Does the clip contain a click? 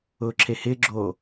yes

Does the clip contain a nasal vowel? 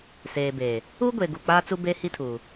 no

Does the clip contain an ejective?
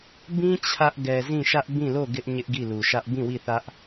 no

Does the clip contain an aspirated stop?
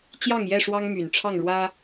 yes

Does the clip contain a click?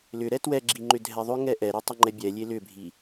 yes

